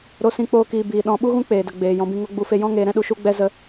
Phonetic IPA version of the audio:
ɾo˦sĩ˦k͡poː˦kiː˧ biː˨ ɗɔ̃˦ ɓu˦ɣũ˦k͡peː˨də˨ ɡ͡beː˨ jɔ̃˧bĩ˧ŋo˦ ɡ͡bu˧fe˧ jɔ̃˦ ŋeː˧ɾɛ̃˦ɗu˧ ʃu˦ɡ͡bɛ˦ zə˧

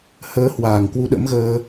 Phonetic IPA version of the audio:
həː˧hwaː˧˩ŋ kwu˨˦ɗə̰˧˥mɣəː˧

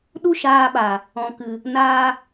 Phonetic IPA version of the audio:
ɗu˦ʃaː˧ɓa˨ | ɔ̃˨kɨ˨ | naː˧

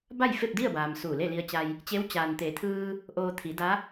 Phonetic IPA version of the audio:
ba˥˨jfe˥˨p̚di˥˨ə̯baː˩m suː˧˩le˥˨li˧ə̯t͡ɕa˧j | t͡ɕe˧˥w t͡ɕaː˩nt̪eː˩˧t̪ʰɯː˧ | ʔoː˧t̪ʰi˩˧da˧˥

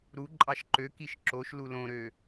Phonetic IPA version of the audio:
ɾu ǃʼɑʃǃøkiʃ ǁoʃlu lõɾø

